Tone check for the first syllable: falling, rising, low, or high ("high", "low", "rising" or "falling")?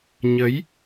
rising